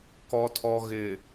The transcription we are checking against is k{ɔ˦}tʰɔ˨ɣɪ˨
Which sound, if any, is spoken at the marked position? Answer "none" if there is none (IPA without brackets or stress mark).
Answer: ɔ˨